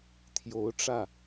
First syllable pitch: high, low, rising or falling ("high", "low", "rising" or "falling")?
rising